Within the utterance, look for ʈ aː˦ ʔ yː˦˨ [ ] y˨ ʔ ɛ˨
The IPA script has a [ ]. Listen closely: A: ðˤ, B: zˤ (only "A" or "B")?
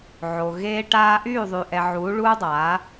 A